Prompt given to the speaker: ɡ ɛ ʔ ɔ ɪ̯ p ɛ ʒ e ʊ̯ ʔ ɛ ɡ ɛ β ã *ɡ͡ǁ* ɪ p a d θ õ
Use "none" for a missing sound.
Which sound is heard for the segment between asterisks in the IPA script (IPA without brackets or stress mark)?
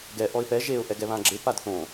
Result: ɡ͡ǁ